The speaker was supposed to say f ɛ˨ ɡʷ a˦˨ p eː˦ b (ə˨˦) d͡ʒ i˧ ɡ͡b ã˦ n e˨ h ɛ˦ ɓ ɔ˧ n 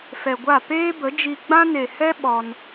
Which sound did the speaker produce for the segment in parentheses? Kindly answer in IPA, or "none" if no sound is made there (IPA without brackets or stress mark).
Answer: ə˨˦